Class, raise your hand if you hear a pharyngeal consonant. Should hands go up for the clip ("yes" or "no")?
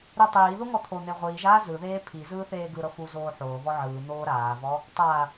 yes